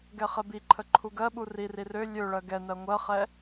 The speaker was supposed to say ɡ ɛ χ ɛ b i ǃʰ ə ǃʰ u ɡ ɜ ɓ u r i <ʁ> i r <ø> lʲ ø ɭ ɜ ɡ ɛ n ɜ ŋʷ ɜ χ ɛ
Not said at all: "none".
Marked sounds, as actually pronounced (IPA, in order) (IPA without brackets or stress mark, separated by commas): r, ø